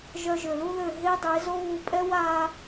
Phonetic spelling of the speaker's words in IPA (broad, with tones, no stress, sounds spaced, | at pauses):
ʒ œ˧ ʒ ø˨ l u˦ ð ø˦˨ ɦ e˦ dˤ e˨˦ z o˦ β u˧ pʼ ɛ˦ w a˦